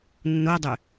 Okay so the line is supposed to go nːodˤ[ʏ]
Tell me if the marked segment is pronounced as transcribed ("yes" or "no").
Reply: yes